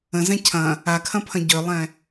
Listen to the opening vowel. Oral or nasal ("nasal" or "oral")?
nasal